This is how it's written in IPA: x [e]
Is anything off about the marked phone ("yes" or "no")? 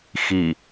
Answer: yes